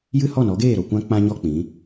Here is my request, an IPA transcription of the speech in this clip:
j ɨ˦ h ɔ˦˨ n ɔ˨˦ ɡ eː˦˨ ɾ o˨ kʷ ã˦ k͡p ã˦ ɲ ɔ˧ k͡p ĩ˨˦

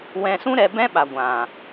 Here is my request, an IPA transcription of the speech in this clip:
w ɛ̃˧ s ũ˦ ɾ ɛ˧ b ɛ̃˦ ɓ a˨ ɡʷ ã˨

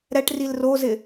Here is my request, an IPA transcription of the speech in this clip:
ɾ ɛ ʈ r i l r o z ɪ

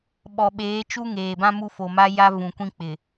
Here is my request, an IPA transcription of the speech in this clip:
ɓ ɔ˨ ɓ eː˨˦ t͡ʃ u˦ ŋ eː˨ b ã˦ m u˦ f o˨ m a˦ j a˦ v ũ˨ kʷ ĩ˦ k͡p ɪ˨

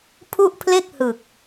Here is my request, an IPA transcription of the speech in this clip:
pʰ u˥˩ ʔ pʰ l e˥˩ k̚ h ɯ˨˩ k̚

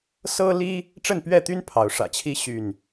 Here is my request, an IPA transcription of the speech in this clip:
s ɤ˦ l i˦ | ʈ͡ʂ ə˥˨ n p ɥ ɛ˥˨ t̪ y˦ n pʰ ɑ˨˦ ʊ̯ ʂ ä̰˨˩ t͡ɕʰ i˦ ɕ y˥˨ n

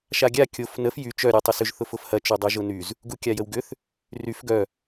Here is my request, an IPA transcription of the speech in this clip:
ʃ a ɡʲ a kʲ o f n ə f j y t͡ʃ œ ɾʲ ø tˤ ʏ s ʏ ʒ θ ʊ f ʊ f h ɐ t͡ʃ y dˤ œ ʒ ʊ n y z | ɡ u kʲ a j ə w ɡ ʏ θ | r y f ɡ œ

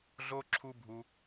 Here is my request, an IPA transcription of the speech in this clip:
ɮ o˦ ǁʰ u˦ bʱ u˧

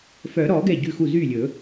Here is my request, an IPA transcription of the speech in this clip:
f œ˨˩˦ ɾ ɔ˨˩˦ ɡ ɛ˥˩ ɟ ʉ˥˩ x u˥˩ z y˥˩ lʲ ɵ˨˩˦

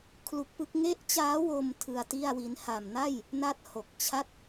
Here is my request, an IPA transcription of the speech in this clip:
kʰ l u˦˥ k̚ p ɯ˦˥ k̚ ŋ e˦˥ ʔ t͡ɕ aː˦˥ w o˧ m tʰ ɯ˧ a̯ t i˥˩ a̯ w i˦˥ n h a˨˩ m n a˥˩ j | n a˥˩ t̚ h o˨˩ k̚ t͡ɕʰ a˥˩ t̚

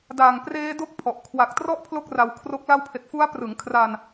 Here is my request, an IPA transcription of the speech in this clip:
d aː˨˩ ŋ p r eː˦˥ d o˦˥ k̚ pʰ ɔ˨˩ ʔ kʰ w a˨˩ k̚ t r ɔ˦˥ ʔ pʰ l o˥˩ k̚ r a˧ w kʰ r o˦˥ k̚ l a˦˥ w pʰ e˨˩ k̚ f u˦˥ a̯ p r ɯ˩˦ ŋ kʰ r a˧ n

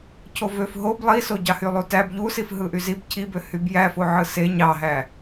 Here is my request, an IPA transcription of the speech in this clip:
cʰ o v ø f ɦ o b lˠ i s o ɟ ɑ h y lˠ u t æ b ʎ u s i f ɦ ɯ ʔ y z i b cʰ i b ø h y b j æ f o ʕ ɯ s e ɲ ɑ ɦ æ

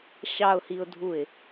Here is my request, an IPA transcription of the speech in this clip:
ɕ ɑ ʊ̯ h i ʊ̯ dʱ u ɪ̯

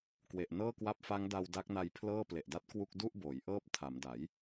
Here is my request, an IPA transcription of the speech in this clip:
k w e˨˩ ʔ n ɤː˥˩ k w a˦˥ p̚ f a˦˥ ŋ d a˧ w d a˦˥ k̚ n a˧ j pʰ l ɤː˥˩ p l e˨˩ ʔ d a˦˥ t̚ k w u˥˩ k̚ d u˥˩ ʔ b oː˩˦ j ʔ ɤː˦˥ p̚ tʰ a˩˦ m d a˩˦ j

